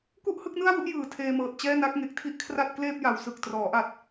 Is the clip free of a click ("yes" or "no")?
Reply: yes